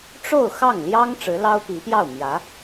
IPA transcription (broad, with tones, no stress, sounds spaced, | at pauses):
ʈ͡ʂ o˥˧ ʊ̯ x ɑ˥˩ ŋ l j ɑ˥ ŋ ʈ͡ʂ ɻ̩˧˥ l ɑ˥ ʊ̯ p i˧˥ p j ɑ˥˩ ʊ̯ m j ä˧˥